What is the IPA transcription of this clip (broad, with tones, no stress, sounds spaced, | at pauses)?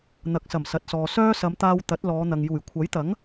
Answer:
n̪ ɐ˨˥ k̚ s ɐ˨˩ m s ɐ˨ t̚ s ɔː˨ s œː˥ s ɐ˨˧ m t̪ aː˧ w t̪ ɐ˨˥ t̚ l ɔː˨˧ n̪ ɐ˨ ŋ j uː˨˩ j kʷʰ ɐ˨˥ j t̪ ɐ˨˥ ŋ